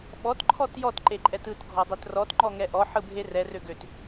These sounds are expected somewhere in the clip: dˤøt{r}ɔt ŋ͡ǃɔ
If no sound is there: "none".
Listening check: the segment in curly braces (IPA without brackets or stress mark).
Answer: r